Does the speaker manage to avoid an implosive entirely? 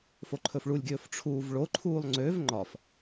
yes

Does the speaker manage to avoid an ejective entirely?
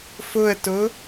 yes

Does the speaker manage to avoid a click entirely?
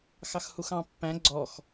no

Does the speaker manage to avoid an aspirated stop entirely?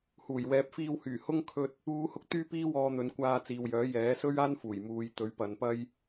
no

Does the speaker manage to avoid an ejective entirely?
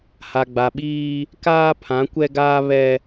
yes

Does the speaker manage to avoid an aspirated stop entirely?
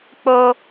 yes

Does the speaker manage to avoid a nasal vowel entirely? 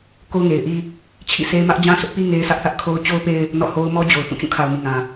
no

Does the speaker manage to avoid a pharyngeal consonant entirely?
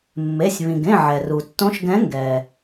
no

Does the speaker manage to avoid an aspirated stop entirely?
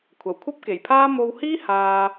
no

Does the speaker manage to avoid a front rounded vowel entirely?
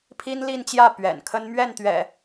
yes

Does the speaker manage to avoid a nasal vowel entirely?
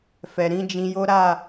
no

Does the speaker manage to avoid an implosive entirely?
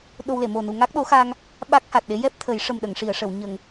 no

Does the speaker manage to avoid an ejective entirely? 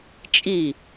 no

